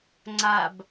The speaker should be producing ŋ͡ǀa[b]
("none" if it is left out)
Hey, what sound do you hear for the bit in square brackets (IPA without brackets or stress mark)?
b